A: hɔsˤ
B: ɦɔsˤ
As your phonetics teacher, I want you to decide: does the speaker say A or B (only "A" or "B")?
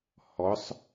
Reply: A